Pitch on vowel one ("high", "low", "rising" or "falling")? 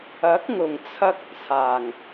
rising